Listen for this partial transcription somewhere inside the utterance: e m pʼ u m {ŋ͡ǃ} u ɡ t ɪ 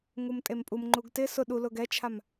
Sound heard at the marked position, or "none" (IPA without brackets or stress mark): ŋ͡ǃ